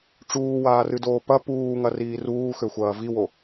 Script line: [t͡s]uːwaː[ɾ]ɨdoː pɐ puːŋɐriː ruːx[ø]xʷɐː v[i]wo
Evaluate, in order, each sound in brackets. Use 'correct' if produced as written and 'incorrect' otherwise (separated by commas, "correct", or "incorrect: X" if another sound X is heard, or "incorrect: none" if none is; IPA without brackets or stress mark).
incorrect: ʈ͡ʂ, incorrect: r, correct, correct